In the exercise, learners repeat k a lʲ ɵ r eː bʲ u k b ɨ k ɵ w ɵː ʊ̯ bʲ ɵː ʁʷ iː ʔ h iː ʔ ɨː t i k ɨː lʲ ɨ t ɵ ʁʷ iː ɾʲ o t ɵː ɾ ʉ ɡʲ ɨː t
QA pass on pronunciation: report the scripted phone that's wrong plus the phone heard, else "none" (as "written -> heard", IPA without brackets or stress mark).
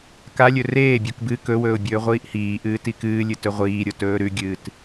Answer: none